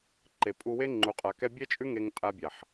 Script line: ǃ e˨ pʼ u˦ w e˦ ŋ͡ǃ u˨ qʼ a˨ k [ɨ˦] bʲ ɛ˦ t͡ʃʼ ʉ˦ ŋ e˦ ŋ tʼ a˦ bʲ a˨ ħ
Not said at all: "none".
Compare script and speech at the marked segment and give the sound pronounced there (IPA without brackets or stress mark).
ɛ˦